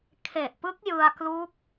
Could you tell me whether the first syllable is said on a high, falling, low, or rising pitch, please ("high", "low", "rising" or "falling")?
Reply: low